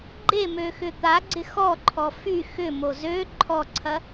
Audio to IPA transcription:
ɡ͡ǃ e m ø x ʏ t̪ a ɡ͡ǀ ɪ x ɔ ǃʰ ɔ f y x ʏ m o z ø ǃʰ ɔ ǀʰ ɐ

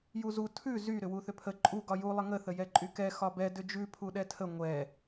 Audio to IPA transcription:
j u z u tʰ ʉ z y ɾ ʏ w u θ ʏ pʰ ə ǃʼ u ɡ ɒ j u lˠ ə ŋ ə θ ə j ɛ ǃʼ y k ɛ x ɒ b ɛ d ʏ d͡ʒ ʉ pʰ u ɗ ɛ tʰ ə ŋʷ ɛ

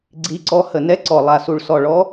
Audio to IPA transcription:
ɡ͡ǀ i˨˦ ǀ ɔ˨˦ h ə˨˩ n ɛ˨˦ ǀ ɔ˨˩ lˠ a˨˩ s u˨˩ ɭ s ɔ˨˩ ɭ ɔ˨˦

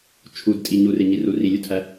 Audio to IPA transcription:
t͡ʃʰ u d tʼ i ɲ u r e ɲ i r u r i lʲ u tʰ æ

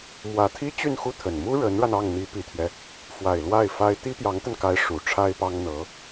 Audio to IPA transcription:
m w ä˨˩ t̪ʰ i˥ t͡ɕ y˥˧ n x u˥˩ t̪ʰ ə˨˩ n m u˥ ɻ ə˧˥ n ɻ a˧ n ɑ˥˩ ŋ n̪ i˧˥ p i˨˩ t̪ʰ ɥ ɛ˦ | f w a˨˩ ɪ̯ l w a˥˩ ɪ̯ f a˥ ɪ̯ t̪ i˥ p j ɑ˧˥ ŋ t̪ ə˧ n k a˧˥ ɪ̯ ʂ u˨˩ ʈ͡ʂʰ a˥ ɪ̯ p ɑ˥ ŋ n̪ ɤ˧˥

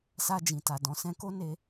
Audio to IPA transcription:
s a˧ d͡ʒ ĩ˨ t a˨ d ɔ̃˨ s ɛ̃˧ k o˦ n e˧

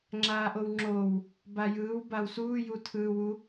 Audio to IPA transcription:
ŋ͡ǁ aː ʔ o w ŋ͡ǁ oː w | b a j ɯː w b a w s uː j u tʰ ɯː w u

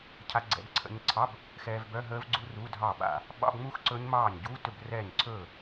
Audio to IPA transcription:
cʰ a˧ ɡ͡ǀ ɛ̰˧ b ǀʰ ə̰˧ ɲ ǀʰ ɑ˧˥˧ b | x ɛː˧ v b œ˧˥˧ ɦ əː˦˥ v ɡ͡ǀ u˦˥ r u˧˥˧ dʱ ɑ˥˩ ɓ a̰˥˩ | ɓ ɑ̰˧˥˧ b ŋ͡m u˦˥ x ǀ ɵ˦˥ ɲ m ɑː˥˩ ɲ ɟ uː˧˥˧ t ɵ˥˩ b r ɛː˥˩ ɲ ǀʰ ɵː˥˩

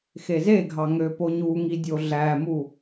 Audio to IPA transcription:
x e z e ɡʱ ɑ ŋ ø p o ɲ u ŋ i dʲ o ɮ æ m u

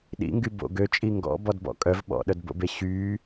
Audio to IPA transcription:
ɗ ḭ ŋ ɡ y b o̰ ɡ ø t͡ʃʼ i ŋ ɡ ɔ̰ b ɔ d b ɔ̰ kʼ œ v ɓ ɔ̰ ɗ œ d b o̰ b e ɕ y

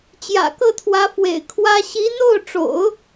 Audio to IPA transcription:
t͡ɕ j ä̰˨˩ k ɤ˥˩ t̪ʰ w ä˧˥ f w ḛ˨˩ ɪ̯ kʰ w ä˥ ɕ i˧˥ n̪ o˥˩ ʊ̯ ʈ͡ʂ o̰˨˩˦ ʊ̯

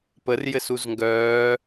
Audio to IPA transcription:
p ə r j ɘ s u z ŋ ɡ œː

